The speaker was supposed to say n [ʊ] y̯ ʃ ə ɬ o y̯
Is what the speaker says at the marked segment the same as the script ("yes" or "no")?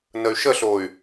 no